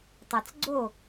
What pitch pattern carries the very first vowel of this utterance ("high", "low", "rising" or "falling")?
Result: low